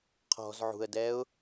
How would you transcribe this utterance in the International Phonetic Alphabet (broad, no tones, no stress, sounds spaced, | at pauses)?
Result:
qʰ ɔ̤ z ʕ ṳ ə̯ d ɛ ʊ̯